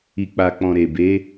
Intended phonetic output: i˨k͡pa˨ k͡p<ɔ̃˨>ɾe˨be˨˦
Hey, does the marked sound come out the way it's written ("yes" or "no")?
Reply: yes